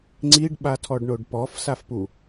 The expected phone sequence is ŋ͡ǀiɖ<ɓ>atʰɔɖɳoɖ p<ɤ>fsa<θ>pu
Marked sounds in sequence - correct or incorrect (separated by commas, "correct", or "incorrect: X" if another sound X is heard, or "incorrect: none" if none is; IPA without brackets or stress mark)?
correct, incorrect: ɔ, incorrect: f